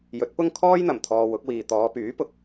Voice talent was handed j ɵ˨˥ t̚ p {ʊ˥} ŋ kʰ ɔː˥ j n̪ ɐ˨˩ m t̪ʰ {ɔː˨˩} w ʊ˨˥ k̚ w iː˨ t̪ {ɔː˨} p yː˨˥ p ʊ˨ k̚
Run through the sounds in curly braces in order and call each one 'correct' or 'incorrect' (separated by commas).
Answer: correct, incorrect, incorrect